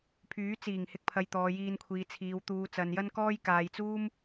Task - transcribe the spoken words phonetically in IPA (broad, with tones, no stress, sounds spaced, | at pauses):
pʰ yː˨˥ t͡s iː˨˩ ŋ h ɪ˧ k̚ pʰ ɐ˨ j t̪ ɔː˨ j iː˧ n kʷʰ iː˨ t͡sʰ iː˨ w t̪ uː˨˧ t͡s ɐ˨ n j ɐ˥ n k ɔː˥ j k aː˨ j t͡s uː˥ m